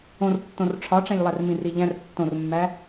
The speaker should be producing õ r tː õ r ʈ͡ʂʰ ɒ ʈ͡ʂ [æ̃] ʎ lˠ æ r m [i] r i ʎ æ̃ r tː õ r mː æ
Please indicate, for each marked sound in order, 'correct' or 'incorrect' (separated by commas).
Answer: correct, incorrect